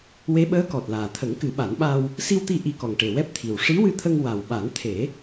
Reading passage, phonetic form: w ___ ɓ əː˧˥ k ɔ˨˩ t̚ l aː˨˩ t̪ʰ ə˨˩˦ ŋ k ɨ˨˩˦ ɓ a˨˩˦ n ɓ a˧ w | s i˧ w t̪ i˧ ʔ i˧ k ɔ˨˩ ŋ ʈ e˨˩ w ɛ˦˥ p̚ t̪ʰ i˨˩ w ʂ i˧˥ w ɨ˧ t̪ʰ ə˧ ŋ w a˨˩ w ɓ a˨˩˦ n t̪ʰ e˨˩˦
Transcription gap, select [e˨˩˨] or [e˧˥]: e˧˥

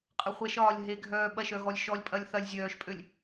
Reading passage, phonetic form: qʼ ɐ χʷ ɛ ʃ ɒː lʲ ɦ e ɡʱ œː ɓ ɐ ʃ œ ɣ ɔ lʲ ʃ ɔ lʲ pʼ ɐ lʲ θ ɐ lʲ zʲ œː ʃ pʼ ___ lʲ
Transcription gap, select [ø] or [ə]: ø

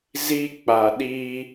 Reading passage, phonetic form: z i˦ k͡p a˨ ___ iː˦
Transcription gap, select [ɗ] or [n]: ɗ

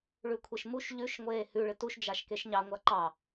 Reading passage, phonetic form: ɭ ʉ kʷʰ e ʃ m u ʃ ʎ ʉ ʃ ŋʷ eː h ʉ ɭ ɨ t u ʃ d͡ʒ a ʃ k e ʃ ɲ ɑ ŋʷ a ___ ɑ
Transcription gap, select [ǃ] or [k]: ǃ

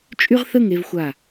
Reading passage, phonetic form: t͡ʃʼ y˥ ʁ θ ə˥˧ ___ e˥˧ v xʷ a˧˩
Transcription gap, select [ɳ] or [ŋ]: ŋ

